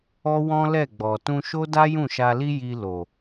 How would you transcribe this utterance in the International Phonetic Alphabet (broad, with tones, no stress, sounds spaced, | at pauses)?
ɔ˦ w ɔ̃˦ l ɛ˦˨ ɡ͡b ɔ˨ t ũ˧ ʃ o˦ d a˦ j ũ˦˨ ʃ a˧ l i˦ j i˧ l o˨